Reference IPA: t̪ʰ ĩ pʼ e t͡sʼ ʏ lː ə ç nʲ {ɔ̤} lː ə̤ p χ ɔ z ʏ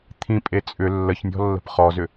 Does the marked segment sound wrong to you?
no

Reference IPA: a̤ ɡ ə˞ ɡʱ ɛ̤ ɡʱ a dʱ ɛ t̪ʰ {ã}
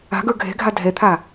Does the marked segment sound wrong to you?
yes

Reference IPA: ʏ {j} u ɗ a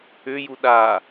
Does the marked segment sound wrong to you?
no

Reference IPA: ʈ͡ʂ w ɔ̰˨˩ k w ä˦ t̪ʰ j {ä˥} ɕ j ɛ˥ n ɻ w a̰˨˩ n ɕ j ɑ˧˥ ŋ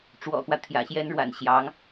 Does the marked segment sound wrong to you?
yes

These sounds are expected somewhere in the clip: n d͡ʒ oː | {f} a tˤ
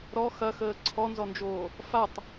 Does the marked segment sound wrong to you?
no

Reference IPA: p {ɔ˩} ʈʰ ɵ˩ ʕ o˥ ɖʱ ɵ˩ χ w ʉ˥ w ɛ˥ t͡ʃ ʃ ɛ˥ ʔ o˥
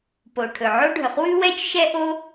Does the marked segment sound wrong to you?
yes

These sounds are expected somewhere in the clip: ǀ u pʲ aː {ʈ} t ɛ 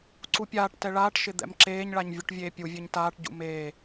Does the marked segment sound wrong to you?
no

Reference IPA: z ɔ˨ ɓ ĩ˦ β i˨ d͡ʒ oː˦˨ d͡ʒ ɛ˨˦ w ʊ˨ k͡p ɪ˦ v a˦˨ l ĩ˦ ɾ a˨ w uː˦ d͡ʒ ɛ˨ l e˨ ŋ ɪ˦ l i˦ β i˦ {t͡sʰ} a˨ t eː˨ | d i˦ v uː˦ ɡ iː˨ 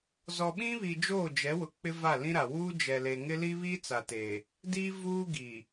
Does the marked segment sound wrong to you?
yes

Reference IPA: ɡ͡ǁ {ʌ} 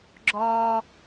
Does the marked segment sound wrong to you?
yes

